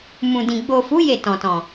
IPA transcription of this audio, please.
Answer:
m ũ˨ d ĩ˨ ɡ͡b o˨ f u˨˦ j e˦˨ t ɔ̃˨ t ɔ̃˨

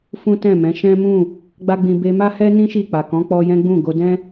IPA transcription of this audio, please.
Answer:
f ũ˦ t ɛ̃˦˨ m ɛ̃˨˦ ʃ ɛ̃˦ m ũ˦˨ | ɡ͡b a˦ ɡ͡b ĩ˧ b e˧ m a˦ h ɛ˦ n ĩ˦ ʃ i˦˨ k͡p a˨ k ɔ̃˨˦ k͡p ɔ˧ j ɛ̃˦ ɡ͡b ũ˦˨ ɡ o˧ d ɛ̃˦

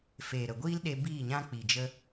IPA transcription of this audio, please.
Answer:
f eː˨ ɾ ə˨ ɡʷ iː˦ l ɗ e˧ b iː˦˨ ɲ ã˦ k͡p i˨ d͡ʒ ə˧

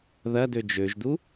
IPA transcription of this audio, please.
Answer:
ð ɐ d ø d͡ʒ ø ʒ d u

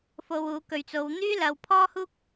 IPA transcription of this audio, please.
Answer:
f o˧ w uː˨˧ k ɵ˨ ɥ t͡s o˨˧ w n̪ yː˥ l ɐ˨ w pʰ ɔː˥ h uː˥ k̚

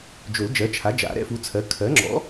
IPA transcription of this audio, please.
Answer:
d͡ʒ ʊ˨˩˦ l d͡ʒ ɜ˩˥ t͡ʃʰ a˩˥ d͡ʒ a̰˨˩˦ ɾ ɛ̰˩˥ f u˩˥ t͡sʰ ɜ˩˥ kʰ ɜ˩˥ ŋ͡ǁ ɔ̰˩˥

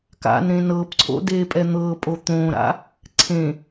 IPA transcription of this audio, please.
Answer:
k a̰ n ɾ ẽ n ɤː p ǀʰ o̰ d eː pʼ ɛ n̪ ɤː pʼ o t̪ õː ɾ a̰ | ǀʰ ẽ

